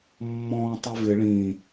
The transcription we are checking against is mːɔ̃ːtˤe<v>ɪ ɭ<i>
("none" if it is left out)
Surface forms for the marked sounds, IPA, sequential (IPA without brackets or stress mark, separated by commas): v, ĩ